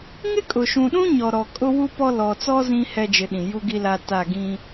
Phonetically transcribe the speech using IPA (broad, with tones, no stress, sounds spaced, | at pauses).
ŋ ɪ˦ kʼ ʊ˨ ʃ ũ˨ ɗ ũ˦ ɲ ɔ˨ ɾ ɔ˨ kʼ ʊ˦ w u˦ p ɔ˦ l ɔ˨ t͡s ɔ˦ z ĩ˦ h ɛ˦ d͡ʒ ɪ˨˦ ɗ ĩ˨ j u˦ ɡ i˦ l a˦ t a˦˨ ɡ ĩ˦